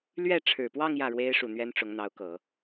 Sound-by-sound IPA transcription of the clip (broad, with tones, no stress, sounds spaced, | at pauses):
l ɥ ɛ˥˩ ʈ͡ʂʰ ɻ̩˨˩ p w ɑ˥˧ ŋ j ä˥˩ ɻ w e˥ ɪ̯ ʂ u˨˩ n̪ ɥ ɛ˥ n ʈ͡ʂ ʊ˧˥ ŋ n̪ ɑ˧˥ ʊ̯ k ɤ˨˩˦